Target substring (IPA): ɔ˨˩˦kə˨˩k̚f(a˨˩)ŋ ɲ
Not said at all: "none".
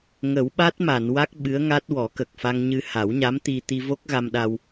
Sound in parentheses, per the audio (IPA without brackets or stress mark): a˧